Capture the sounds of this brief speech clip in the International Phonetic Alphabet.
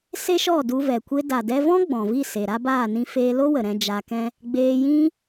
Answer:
s e˦ ʃ ɔ˦˨ d u˧ v ɛ˨ kʷ e˧ d a˨ d ɛ˧ v ɔ̃˦ ɡ͡b ɔ̃˨ v i˦˨ s e˨ ɾ a˦ b aː˦˨ n ĩ˧ f eː˧ l o˦ w ə˨ ɾ ɛ̃˧ d͡ʒ a˧ k ɛ̃˦ | ɡ͡b eː˧ j ĩ˦

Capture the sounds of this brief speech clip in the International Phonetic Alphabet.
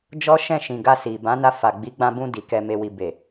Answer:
d͡ʒ ɔ˦ ʃ ɛ̃˦˨ ʃ ĩ˨ ɡ a˧ s i˨ b ã˨˦ n a˧ f a˨ ɡ͡b i˨˦ ɡ͡b ã˧ b ũ˧ d i˨ k ɛ˧ m e˧ w i˨ b e˨

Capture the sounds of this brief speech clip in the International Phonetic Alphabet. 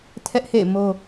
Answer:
tʰ ɛ˦ ʔ h ḛ˦˨ ɪ̯ m o˦

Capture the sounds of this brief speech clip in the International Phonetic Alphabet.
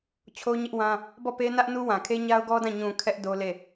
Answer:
t͡ɕʰ o˦ ɲ ɪ˦ ʔ w ã˦ | b ɔ˦˨ p e˦ n ä˦ ʔ n u˦ w ã˨ kʰ e˦ ɲ a˦ ʊ̯ ɡ ɔ˦ d ã˦˨ ɲ ũ˨ kʰ ɛ˦ ʔ d o˦ l e˦˨

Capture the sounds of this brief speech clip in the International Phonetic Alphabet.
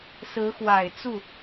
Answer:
s ɹ̩˧˥ x w a˨˩ ɪ̯ t͡s u˥˩

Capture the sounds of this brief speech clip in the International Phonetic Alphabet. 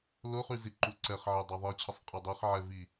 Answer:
l ʊ χ y z i ǃ u ǀ ɛ χ ʕ e dˤ a ðˤ i t͡ɕʰ ə sˤ qʼ ɐ dˤ e χ ʕ ɛ v i

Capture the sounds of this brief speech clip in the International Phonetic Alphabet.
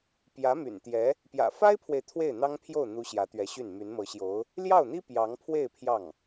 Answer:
p j ä˧˥ m y̰˨˩ n t̪ j ɛ˧˥ | p j ä̰˨˩ f a˥ ɪ̯ pʰ w e˨ ɪ̯ t̪ʰ w e˥˩ ɪ̯ n̪ ɑ˥ ŋ pʰ j o˥˩ ʊ̯ n̪ u˧˥ ɕ j ä˧˥ t̪ ɥ ɛ˧˥ ɕ y˥˩ n m y˧˥ n m ɤ˧˥ ɕ j o˧˥ ʊ̯ | l j ɑ˥˩ ʊ̯ n̪ i˥ p j ɑ˧˥ ŋ pʰ w e˥˧ ɪ̯ pʰ j ɑ˥˩ ŋ

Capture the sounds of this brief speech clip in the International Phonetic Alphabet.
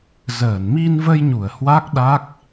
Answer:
z əː˧˩ n m i˧ n v ə˧ j ɲ u˧˩ ə̯ h w a˦˥ k̚ ɗ a˦˥ k̚

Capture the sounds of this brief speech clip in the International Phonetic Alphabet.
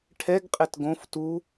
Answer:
ʈʰ ɛ ɡ qʼ ɛ t ɡ õ f t u

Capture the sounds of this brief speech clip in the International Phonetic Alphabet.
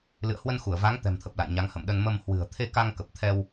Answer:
l ɨ̰˧˨ ə̯ h w ə˧ n x u˧˩ ə̯ v a˨˦ ŋ t̪ ɛ̤˨˩ m t̪ʰ ə˨˩ p̚ l a̰˧˨ j ɲ a˨˦ ŋ h ə̰˧˨ m ɗ ə˧ n m ə˧ m h w ɨ̤˨˩ ə̯ t̪ʰ e˧ k a˧ ŋ k ə˨˩ p̚ t̪ʰ ɛ˧ w

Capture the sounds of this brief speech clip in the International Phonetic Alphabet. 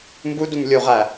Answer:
m b u d u m lʲ u ʁ æ

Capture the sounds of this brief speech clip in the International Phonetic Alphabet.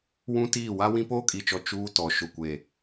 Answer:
w ũ˦ t iː˦˨ w a˦ w ĩ˦ p oː˦ kʼ i˨ t͡ʃ ɔ˨ t͡ʃ uː˦ t ɔ˨ ʃ ʊ˨ kʷ eː˨

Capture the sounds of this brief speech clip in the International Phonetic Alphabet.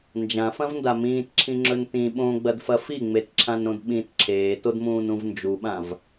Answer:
n d͡ʒ ã f ɐ̃ v n d a m ĩː t ǁʰ ĩ ŋ͡ǁ ɵ n t ĩ ɓ õ ɡ͡b ɐ d f ɐ f i ŋ͡m e t ǁʰ ã n ɾ õ d ɓ ĩ t ǁʰ eː t o d m ũː n ũ v n d͡ʒ u ɓ ã v

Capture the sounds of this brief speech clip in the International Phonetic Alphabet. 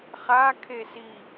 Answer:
χ a kʰ e s i

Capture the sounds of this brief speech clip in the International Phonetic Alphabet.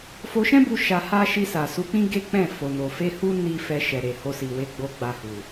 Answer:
f o˧ ʃ ɛ̃˦ b u˧ ʃ a˧ h a˦ ʃ i˧ s a˨ s u˨˦ k͡p ĩ˦ ɡ e˦ k͡p ɛ̃˦˨ f o˨ n o˨ f e˧ h u˦ n i˦ f ɛ˧ ʃ ɛ˨ ɾ e˨ h o˧ s i˨ w e˨˦ ɡ͡b o˧ ɡ͡b a˧ h u˨

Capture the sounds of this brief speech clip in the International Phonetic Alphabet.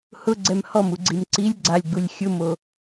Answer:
h ʊ ɡ͡ǀ ɛ m h ɔ m u ɡ͡ǀ i m ǀ i lʲ ɡ͡ǀ a lʲ ɡ͡b u lʲ xʲ ʊ m o

